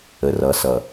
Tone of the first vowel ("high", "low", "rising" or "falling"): low